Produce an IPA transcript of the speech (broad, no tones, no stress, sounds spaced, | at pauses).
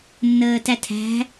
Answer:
nː əː t æ tʰ æ̤